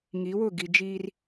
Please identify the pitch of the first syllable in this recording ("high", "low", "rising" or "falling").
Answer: rising